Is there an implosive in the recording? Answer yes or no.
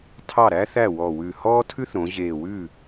no